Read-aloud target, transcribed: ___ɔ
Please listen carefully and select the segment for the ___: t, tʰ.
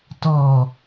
t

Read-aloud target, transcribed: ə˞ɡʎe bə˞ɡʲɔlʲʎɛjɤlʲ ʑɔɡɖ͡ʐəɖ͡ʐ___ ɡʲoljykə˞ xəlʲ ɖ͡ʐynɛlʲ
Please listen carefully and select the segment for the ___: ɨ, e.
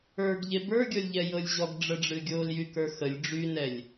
ɨ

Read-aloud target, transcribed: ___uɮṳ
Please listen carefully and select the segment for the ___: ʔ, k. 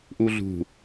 ʔ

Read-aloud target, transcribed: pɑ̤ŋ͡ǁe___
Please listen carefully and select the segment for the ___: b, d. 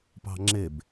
b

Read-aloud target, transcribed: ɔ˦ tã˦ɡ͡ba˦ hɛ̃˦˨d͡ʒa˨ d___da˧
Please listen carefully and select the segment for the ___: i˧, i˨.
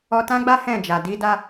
i˧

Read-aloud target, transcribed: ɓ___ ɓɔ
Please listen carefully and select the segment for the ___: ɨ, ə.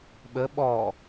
ə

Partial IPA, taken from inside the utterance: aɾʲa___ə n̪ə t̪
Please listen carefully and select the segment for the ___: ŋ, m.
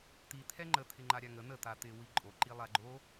ŋ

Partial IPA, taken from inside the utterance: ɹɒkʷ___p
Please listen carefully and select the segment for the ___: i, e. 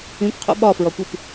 i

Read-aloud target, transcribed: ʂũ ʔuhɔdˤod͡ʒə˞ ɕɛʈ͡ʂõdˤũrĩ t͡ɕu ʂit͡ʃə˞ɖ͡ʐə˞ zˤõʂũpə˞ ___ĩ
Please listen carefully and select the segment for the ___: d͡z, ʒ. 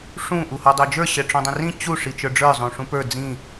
d͡z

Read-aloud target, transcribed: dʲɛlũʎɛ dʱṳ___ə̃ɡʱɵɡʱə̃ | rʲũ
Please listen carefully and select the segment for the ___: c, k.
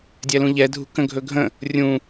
k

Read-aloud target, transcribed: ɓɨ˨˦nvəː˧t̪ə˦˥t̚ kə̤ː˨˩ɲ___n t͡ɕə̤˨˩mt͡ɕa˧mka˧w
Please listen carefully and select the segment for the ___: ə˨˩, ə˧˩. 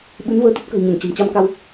ə˧˩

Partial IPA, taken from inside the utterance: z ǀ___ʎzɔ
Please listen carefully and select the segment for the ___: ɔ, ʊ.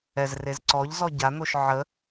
ɔ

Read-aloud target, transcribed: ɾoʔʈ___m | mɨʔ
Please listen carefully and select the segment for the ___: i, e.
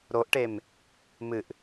e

